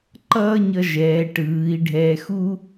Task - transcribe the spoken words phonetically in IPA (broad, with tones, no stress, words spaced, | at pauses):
ǃʌː˥ɲʌ˧ ʒɛː˩˧ʈɯː˩˧i̯ɖʱɛː˧xu˥